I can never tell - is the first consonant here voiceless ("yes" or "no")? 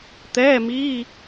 yes